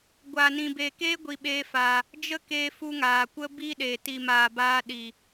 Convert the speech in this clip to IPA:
ɡʷ aː˨ n ĩ˨ b eː˨ k eː˦ ɡʷ i˧ ɓ eː˦ f aː˧ | d͡ʒ ə˦ k eː˧ f u˧ ŋ aː˨ kʷ ə˦ b iː˦ ɗ eː˨ t i˨ m aː˨ b aː˧ ɗ i˨

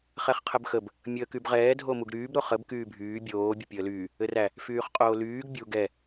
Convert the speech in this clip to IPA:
χ ɛ χ qʰ ə b x ə b | mʲ əː k y b ʁ ɛː dʱ o m u ɡ ɾ yː b ɾ o χ ə b k yː bʱ yː bʲ oː bʲ ə pʲ əː l yː | ɘ r æ | f yː χ qʼ oː l yː ɡ bʲ u ɡ ɛ

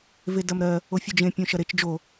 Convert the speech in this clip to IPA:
v e d ɐ m ɾ ɜ | o fʲ u d͡ʒ ẽ pʲ õ ʃ ɐ ɾ e t͡ʃ d͡ʒ o

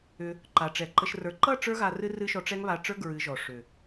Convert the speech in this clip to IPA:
ʏ˧ | ǃ a˨ ʈ͡ʂ ɛ˨ ǃ ə˧ ʃ r ə˞˧ ǃ ʌ˦˨ ʈ͡ʂ ə˞˧ ɣ a˨ r ɨ˦ r ɨ˦ ʃ ɔ˧ ʈ͡ʂ ɛ˦ ŋ β a˧ ʈ͡ʂ ə˞˦ ɡ ɹ ɨ˨˦ ʒ ɔ˨ ʂ ʏ˨

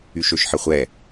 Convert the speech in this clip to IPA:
y ʃ ø ʃ ħ ə χʷ ɛ

